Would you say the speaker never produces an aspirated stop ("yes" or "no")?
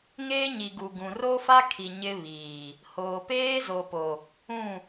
no